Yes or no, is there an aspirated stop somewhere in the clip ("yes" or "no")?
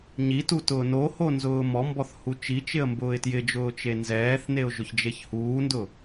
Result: no